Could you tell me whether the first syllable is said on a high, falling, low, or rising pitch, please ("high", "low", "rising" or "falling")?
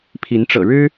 rising